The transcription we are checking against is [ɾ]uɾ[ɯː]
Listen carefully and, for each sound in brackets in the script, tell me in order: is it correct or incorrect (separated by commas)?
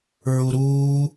incorrect, incorrect